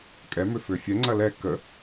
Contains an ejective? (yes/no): yes